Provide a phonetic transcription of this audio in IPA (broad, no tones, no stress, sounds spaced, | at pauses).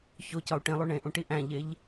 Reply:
ç o c ɒ u̯ ʈ ĩ lˠ u ɳ ẽ ʔ ũ ʈ i ʔ æ̃ ʎ e ʎ